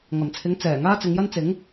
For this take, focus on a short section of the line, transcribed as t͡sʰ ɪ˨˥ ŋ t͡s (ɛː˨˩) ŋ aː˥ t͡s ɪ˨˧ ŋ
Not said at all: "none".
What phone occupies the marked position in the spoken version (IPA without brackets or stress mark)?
ɛː˨˩